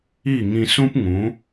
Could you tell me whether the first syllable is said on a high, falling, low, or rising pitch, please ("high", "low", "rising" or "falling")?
falling